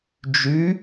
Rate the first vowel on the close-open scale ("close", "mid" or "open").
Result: close